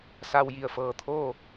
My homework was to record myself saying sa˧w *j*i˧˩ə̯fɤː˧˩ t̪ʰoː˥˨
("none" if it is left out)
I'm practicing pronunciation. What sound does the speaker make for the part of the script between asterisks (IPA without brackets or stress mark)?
j